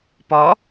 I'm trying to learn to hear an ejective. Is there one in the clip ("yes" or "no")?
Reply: no